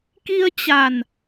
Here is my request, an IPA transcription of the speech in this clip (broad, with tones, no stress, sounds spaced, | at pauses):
k i˧ ə̯ t͡ɕ a˨˩ n